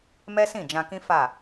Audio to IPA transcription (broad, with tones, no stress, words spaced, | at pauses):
mɛ˦sĩ˦˨d͡ʒã˧kĩ˦ fa˦˨